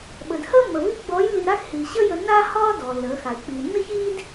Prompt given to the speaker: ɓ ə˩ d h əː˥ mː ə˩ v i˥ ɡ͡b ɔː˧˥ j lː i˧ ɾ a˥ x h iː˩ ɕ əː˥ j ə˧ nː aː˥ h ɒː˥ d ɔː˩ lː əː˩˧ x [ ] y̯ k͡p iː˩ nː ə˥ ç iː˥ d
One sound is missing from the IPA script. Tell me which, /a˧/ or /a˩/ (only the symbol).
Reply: a˩